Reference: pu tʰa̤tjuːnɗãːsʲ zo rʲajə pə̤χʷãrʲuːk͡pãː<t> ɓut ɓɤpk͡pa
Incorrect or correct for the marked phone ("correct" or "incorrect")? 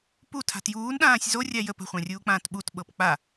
correct